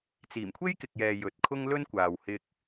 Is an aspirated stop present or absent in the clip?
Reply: present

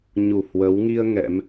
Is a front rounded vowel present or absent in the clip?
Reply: absent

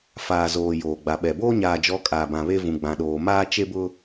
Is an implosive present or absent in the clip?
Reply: present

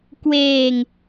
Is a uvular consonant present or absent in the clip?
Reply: absent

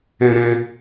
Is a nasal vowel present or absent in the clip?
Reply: present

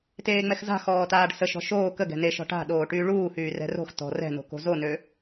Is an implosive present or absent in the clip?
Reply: present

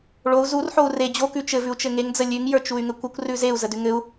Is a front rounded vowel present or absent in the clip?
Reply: present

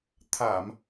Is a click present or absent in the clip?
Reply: absent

